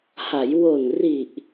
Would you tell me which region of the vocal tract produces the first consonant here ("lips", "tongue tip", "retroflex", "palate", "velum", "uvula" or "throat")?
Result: throat